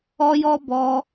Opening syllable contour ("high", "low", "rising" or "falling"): high